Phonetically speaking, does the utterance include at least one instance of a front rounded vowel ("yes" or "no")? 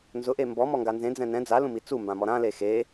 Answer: no